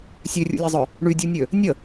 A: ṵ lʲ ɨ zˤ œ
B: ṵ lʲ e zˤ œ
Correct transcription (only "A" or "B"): B